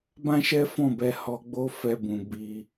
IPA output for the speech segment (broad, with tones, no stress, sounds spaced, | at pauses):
b ã˦ ʃ ɛ˦ f ɔ̃˦˨ b ɛ˧ h ɔ˧ ɡ͡b o˦ f ɛ˧ b ũ˨ b i˧